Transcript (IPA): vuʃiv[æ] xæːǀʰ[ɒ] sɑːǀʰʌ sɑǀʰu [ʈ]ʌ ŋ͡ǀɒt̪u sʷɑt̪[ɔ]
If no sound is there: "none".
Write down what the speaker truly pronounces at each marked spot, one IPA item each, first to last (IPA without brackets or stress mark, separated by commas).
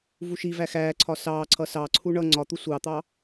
æ, ɒ, ɳ, ɑ